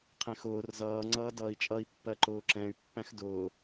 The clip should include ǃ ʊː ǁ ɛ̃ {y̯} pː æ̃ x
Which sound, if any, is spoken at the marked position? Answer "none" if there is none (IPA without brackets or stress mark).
y̯